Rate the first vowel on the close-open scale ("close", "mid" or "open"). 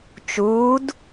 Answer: close